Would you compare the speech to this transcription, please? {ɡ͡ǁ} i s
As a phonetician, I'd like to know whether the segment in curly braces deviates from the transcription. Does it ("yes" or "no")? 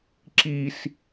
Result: yes